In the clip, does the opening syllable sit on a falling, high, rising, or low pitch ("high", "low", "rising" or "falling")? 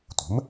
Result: rising